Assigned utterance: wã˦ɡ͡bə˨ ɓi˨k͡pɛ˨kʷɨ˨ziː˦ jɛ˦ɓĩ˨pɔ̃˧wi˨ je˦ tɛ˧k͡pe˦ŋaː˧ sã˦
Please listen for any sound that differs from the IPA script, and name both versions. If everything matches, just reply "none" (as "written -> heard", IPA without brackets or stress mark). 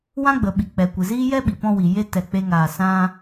ĩ˨ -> i˨